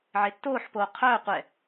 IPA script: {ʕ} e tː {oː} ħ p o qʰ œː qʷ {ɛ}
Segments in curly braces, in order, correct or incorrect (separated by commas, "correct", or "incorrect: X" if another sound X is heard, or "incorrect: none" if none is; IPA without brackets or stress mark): correct, correct, correct